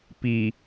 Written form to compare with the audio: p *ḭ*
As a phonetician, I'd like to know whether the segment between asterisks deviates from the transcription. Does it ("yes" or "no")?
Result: yes